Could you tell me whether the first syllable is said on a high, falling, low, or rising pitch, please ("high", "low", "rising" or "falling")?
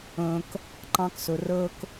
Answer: low